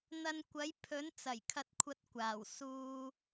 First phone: n̪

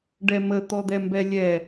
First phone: ɖ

